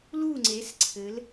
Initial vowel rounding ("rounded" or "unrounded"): rounded